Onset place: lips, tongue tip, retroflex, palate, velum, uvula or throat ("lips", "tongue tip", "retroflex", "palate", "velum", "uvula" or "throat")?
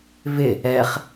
lips